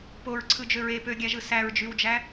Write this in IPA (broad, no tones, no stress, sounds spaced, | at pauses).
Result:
p o ɹ ǀʰ ɯ d͡ʒ ø ɹ e p ø ɡʲ æ ʒ ɯ s æ ɹ d͡ʒ y w d͡ʒ æ